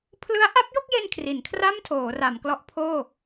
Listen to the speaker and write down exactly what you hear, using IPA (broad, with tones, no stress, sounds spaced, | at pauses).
pʰ l ɯ˦˥ a̯ ʔ a˦˥ p̚ j o˥˩ k̚ j e˧ n kʰ r i˩˦ n kʰ r a˥˩ m tʰ oː˩˦ r a˩˦ m k l ɔ˦˥ ʔ pʰ oː˥˩